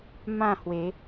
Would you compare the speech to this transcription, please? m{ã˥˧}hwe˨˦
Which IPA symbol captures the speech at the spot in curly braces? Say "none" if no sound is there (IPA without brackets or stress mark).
ã˥˧